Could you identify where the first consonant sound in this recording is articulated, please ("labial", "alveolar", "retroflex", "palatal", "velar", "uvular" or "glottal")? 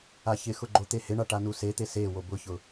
palatal